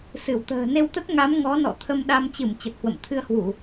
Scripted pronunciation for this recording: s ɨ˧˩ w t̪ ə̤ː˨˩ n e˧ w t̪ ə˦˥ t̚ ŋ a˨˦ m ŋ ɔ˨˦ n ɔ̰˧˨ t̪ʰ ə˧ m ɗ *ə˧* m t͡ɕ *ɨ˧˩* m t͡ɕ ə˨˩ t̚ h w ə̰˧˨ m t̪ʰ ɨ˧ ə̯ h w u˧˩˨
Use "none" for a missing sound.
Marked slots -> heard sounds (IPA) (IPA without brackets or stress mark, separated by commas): a˧, ɨ˧˩